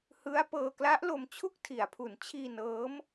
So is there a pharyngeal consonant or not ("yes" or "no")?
no